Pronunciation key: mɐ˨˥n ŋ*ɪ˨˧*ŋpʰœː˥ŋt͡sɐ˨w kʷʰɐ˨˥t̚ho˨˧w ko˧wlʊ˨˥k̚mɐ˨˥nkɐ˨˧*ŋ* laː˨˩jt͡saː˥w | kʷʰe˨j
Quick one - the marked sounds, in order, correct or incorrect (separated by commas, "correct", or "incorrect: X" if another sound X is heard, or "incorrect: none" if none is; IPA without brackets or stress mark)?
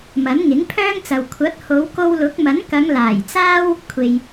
incorrect: ɪ˨˥, correct